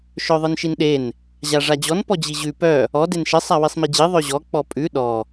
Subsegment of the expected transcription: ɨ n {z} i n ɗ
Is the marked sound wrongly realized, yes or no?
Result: yes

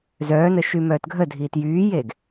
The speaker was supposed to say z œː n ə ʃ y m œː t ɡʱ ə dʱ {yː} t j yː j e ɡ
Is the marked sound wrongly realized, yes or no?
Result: yes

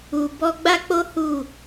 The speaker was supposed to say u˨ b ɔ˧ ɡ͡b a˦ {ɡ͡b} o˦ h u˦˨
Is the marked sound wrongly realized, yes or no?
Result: yes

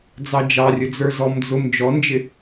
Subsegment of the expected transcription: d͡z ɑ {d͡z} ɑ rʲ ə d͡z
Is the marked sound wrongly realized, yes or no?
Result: yes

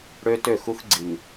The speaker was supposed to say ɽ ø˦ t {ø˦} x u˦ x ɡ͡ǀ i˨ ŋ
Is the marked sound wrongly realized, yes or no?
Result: yes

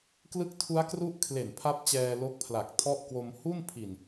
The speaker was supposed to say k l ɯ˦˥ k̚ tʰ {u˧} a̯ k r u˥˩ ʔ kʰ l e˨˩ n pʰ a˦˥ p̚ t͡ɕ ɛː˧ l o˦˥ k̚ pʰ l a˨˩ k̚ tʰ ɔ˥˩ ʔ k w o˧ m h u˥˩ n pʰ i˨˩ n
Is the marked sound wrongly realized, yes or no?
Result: yes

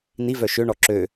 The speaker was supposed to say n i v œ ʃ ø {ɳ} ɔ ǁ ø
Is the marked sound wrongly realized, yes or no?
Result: no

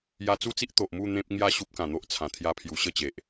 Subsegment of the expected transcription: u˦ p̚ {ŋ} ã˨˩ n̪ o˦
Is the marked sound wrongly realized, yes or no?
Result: yes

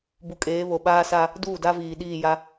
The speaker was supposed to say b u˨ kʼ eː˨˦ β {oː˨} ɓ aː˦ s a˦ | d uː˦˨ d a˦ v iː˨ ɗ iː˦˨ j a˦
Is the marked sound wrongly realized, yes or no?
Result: yes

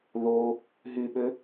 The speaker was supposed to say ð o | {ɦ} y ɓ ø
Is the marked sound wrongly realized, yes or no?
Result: no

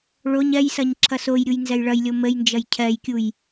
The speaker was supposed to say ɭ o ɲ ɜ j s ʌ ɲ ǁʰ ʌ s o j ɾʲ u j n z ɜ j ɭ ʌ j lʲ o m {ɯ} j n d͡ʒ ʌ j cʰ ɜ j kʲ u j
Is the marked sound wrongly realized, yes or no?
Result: yes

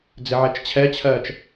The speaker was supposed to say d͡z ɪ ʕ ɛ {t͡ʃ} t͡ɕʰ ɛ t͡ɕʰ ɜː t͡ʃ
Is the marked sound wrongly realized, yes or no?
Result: no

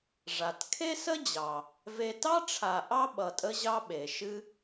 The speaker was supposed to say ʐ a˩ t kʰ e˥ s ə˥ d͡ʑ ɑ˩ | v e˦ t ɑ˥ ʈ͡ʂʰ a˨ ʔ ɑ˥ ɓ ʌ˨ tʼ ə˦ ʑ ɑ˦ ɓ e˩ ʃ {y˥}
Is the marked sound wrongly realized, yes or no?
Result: yes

